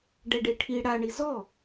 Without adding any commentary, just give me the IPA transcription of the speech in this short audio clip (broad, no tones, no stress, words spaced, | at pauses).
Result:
ɖɛɖeʈʰi ɽaɳi zɔ